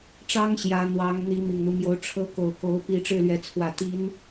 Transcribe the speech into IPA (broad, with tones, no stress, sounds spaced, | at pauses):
ʈ͡ʂ ɑ˥ ŋ ɕ j ä˧˥ n̪ w ɑ˧˥ ŋ n̪ i˧˥ m i˨˩ ŋ n̪ u˦ m j o˧˥ ʊ̯ ʈ͡ʂʰ ɤ˥ k o˨˩ ʊ̯ k o˧˥ ʊ̯ p i˧˥ ʈ͡ʂ ɻ̩˥˩ l ɥ ɛ˧˥ t͡sʰ w ä˨˩ t̪ i˧˥ n